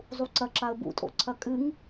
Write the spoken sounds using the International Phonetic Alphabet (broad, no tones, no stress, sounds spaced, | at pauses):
zˤ u ǀ ɐ ǁ a ə̯ b ṵ tʼ o̰ ǀʰ ɐ kʼ ɨ ŋ